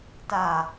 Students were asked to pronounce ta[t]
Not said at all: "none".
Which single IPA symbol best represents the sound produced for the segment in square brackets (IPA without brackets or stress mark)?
none